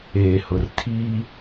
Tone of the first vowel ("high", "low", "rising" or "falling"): low